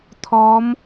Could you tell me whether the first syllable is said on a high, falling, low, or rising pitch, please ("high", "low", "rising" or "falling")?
rising